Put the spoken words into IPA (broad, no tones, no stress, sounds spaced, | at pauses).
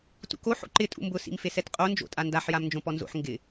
t ṵ k o ħ o̰ ǃ ɪ tʼ ṵ m b ʊ s ḭ m f e s ɛ t qʼ o n d͡ʒ o̰ tʼ a n d a ħ j a m n d͡ʒ õ p ɔ n z o̰ ħ ŋ ɡ ɪ